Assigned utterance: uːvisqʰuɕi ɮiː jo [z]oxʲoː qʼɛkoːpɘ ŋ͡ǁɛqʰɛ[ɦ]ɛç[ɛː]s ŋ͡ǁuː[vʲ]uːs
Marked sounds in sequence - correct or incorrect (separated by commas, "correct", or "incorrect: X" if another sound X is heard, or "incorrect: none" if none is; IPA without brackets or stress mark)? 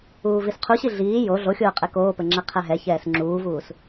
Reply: incorrect: ɮ, correct, correct, incorrect: v